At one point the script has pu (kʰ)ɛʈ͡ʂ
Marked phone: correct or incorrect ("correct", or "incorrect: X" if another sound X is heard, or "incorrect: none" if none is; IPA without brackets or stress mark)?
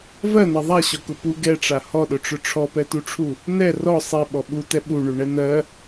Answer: incorrect: ɡ